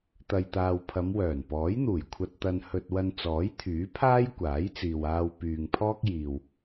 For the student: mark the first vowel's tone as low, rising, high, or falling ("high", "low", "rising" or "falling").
low